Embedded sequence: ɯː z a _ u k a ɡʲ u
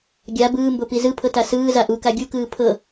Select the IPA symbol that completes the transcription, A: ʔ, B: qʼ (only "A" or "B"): A